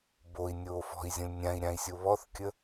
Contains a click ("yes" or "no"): no